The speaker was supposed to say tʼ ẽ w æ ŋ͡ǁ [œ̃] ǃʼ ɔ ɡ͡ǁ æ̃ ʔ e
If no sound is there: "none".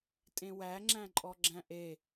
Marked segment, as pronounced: æ̃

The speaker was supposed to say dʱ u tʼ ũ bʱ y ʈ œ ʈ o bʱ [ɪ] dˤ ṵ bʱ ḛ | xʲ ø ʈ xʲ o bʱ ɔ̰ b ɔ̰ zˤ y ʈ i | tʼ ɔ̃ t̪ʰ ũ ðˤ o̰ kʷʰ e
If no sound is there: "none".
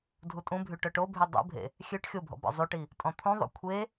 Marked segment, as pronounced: y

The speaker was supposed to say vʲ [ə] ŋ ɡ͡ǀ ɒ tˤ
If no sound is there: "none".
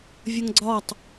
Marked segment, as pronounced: ə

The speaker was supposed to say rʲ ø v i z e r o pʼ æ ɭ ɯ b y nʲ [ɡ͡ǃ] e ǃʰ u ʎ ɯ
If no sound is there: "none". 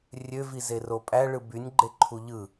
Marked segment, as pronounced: ɡ͡ǃ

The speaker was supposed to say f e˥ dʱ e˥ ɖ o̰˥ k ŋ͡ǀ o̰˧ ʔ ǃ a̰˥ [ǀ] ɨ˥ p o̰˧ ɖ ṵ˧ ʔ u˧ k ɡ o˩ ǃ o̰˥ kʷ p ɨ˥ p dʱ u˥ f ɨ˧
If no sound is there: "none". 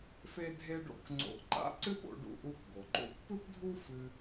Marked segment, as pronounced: ǀ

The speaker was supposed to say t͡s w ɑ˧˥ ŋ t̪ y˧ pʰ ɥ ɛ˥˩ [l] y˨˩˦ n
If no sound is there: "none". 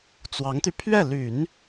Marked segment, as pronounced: l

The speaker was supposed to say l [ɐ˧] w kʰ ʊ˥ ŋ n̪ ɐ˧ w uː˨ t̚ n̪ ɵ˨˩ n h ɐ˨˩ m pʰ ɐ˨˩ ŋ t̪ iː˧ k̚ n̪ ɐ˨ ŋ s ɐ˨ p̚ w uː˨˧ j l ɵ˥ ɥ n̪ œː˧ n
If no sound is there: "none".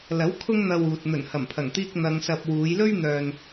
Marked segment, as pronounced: ɐ˨˥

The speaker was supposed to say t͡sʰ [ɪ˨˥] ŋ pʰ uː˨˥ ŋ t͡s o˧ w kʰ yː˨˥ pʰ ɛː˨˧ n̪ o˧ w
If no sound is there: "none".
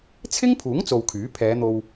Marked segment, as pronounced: ɪ˥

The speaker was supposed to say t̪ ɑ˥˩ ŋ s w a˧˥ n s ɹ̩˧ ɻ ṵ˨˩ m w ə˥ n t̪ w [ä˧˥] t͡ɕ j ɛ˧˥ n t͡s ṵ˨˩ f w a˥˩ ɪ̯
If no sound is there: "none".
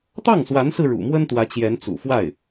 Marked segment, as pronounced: ä˧˥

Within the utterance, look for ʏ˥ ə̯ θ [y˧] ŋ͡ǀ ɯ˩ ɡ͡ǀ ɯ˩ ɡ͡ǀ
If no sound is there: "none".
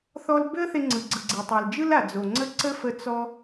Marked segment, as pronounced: e˧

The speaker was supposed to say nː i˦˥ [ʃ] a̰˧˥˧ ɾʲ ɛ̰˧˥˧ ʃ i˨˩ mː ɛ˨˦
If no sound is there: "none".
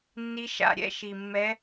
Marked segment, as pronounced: ʃ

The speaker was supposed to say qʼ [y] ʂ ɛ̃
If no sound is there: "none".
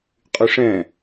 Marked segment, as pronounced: y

